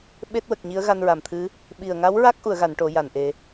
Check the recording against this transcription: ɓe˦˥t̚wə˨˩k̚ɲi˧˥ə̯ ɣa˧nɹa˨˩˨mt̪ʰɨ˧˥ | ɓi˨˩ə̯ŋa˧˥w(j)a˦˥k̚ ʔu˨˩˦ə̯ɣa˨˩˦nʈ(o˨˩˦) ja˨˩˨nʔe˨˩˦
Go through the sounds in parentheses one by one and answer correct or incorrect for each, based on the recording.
incorrect, correct

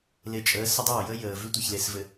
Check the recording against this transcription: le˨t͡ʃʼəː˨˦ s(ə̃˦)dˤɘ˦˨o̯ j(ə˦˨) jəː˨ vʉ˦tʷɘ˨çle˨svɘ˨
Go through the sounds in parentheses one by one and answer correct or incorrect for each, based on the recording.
incorrect, incorrect

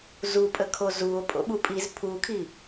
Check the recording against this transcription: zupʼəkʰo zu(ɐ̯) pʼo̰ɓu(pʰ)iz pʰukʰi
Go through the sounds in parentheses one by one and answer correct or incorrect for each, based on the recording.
incorrect, incorrect

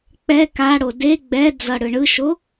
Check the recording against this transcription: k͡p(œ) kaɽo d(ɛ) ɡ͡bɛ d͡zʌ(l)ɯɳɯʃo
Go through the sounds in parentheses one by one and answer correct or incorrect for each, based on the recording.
incorrect, incorrect, incorrect

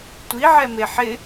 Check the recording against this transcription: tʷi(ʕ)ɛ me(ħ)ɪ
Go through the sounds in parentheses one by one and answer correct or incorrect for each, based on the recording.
correct, correct

